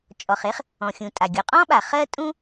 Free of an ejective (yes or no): no